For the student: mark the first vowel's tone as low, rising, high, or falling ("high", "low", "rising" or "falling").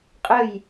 falling